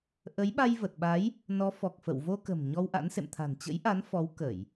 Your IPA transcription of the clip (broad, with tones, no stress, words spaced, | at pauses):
ʔə˨˦jɓa˧jvə˨˩t̚ɓa˨˦j | nɔ˨˦fɔ˨˩k̚fə̰˧˨w vo˧kə̤˨˩m ɲɔ˧wʔa̰˧˥nsḛ˧˨m t̪ʰa̤˨˩nt͡ɕə̰˧˥jʔa˨˦n fɔ˨˦wkə˧˩˨j